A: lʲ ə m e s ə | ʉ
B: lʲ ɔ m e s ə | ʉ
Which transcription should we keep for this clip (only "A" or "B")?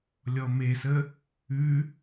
B